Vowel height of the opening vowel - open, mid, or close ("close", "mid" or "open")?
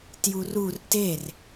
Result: close